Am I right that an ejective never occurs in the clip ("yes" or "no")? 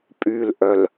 no